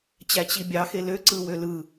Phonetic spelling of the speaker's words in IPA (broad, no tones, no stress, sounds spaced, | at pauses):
t͡ɕ æ t͡ɕ i bʲ ɑ x e l ø ǀ ɯ w ø l ɯ